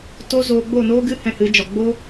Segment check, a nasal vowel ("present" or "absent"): present